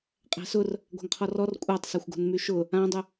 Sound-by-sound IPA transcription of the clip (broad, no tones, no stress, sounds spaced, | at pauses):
qʼ æ̤ s ʊ r | ɡʷ a̤ ŋ qʰ ɔ r ɔ r kʷʼ a tˤ s a xʷ ɡ o̤ n m y ʃ ʊ | ã dˤ u